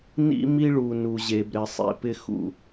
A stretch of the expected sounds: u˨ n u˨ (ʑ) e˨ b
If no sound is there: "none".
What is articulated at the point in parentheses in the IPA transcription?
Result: ʑ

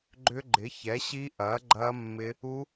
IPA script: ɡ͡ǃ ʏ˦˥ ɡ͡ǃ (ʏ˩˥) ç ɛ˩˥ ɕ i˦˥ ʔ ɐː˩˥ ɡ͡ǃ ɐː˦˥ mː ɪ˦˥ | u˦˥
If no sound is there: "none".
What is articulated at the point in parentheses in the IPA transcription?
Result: ɪ˩˥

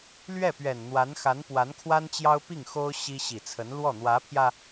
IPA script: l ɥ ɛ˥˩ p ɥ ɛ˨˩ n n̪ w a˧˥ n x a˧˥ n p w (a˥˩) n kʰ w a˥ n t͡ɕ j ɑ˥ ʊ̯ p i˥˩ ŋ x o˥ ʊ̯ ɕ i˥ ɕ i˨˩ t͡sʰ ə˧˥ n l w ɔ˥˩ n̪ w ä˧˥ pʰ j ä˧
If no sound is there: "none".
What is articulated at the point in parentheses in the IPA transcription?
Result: a˧˥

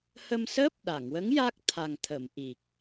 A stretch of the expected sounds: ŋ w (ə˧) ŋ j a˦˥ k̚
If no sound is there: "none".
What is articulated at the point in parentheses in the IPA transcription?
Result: ə˧˥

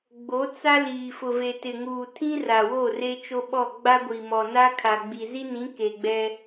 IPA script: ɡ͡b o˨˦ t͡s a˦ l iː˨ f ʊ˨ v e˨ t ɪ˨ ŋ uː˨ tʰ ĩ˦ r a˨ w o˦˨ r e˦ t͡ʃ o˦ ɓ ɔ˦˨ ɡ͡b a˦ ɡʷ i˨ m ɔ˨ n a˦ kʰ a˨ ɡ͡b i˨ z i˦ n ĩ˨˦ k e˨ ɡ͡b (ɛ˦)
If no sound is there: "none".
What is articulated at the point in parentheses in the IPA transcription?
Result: ɛ˦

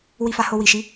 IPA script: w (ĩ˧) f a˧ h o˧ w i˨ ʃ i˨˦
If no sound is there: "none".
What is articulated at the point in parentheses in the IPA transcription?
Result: i˧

